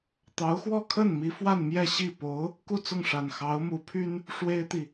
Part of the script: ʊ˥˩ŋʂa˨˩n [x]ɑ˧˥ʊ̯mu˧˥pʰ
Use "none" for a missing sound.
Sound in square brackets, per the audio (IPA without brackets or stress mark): x